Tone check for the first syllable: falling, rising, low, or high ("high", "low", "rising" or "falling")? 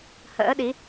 rising